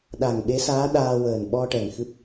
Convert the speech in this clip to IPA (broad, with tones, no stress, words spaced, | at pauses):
ɗa˨˩ŋɓe˧˥saː˧˥ ɗaː˧wəː˨˩n ɓɔ˧ʈɛ˨˩ŋ xɨ˦˥p̚